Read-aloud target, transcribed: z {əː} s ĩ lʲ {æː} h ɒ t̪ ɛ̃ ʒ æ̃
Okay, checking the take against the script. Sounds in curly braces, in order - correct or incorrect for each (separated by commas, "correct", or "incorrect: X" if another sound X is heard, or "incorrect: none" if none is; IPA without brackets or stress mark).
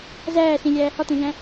incorrect: æː, correct